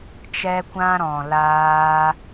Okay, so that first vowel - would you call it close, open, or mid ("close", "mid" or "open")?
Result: mid